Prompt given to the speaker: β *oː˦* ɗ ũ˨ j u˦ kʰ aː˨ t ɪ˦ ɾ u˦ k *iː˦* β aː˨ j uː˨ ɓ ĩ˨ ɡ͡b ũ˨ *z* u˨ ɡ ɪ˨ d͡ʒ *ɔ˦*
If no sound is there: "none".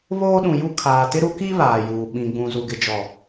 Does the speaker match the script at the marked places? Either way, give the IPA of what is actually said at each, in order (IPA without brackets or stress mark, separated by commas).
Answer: oː˦, i˦, z, ɔ˨